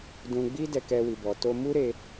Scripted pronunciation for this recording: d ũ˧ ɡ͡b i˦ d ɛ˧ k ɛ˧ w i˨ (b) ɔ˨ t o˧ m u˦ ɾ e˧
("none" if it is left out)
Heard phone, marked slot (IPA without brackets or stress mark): b